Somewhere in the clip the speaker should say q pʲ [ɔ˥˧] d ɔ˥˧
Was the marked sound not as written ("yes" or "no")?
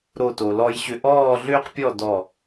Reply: no